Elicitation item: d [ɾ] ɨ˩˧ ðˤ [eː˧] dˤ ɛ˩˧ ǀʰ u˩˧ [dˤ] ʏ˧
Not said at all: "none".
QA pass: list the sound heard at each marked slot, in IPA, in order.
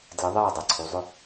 l, eː˧˩, zˤ

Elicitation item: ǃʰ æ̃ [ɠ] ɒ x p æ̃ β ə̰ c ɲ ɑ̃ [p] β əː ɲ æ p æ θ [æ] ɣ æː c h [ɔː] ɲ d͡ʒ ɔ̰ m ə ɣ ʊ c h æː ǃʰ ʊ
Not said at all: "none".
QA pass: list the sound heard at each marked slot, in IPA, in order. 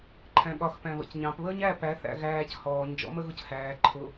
ɠ, p, æ̰, ɔː

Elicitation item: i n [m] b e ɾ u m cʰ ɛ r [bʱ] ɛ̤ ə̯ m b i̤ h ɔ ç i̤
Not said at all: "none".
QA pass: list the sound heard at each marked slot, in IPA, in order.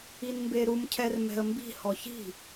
m, m

